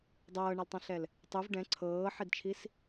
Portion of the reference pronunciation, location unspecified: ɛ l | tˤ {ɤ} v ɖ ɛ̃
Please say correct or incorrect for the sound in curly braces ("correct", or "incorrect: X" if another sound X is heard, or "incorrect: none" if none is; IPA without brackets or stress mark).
incorrect: ɯ